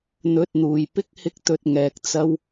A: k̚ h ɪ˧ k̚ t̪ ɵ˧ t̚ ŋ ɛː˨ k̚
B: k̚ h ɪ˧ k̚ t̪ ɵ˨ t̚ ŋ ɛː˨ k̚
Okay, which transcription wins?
B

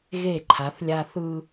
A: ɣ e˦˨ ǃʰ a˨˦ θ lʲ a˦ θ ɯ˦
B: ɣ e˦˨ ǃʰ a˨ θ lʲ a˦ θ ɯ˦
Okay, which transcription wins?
A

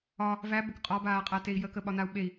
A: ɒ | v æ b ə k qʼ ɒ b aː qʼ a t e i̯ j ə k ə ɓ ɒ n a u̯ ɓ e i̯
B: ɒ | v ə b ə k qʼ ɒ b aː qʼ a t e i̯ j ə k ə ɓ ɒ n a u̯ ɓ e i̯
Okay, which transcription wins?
A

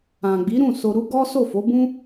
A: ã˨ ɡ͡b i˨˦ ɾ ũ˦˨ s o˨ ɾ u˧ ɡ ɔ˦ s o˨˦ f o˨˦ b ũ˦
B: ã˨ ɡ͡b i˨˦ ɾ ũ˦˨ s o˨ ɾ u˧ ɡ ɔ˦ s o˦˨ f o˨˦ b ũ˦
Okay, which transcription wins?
B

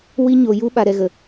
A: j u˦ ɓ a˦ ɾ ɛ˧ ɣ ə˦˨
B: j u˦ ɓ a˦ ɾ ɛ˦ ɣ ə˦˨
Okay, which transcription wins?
B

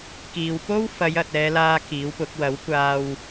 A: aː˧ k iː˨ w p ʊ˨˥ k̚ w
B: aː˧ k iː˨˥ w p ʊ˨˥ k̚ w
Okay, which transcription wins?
B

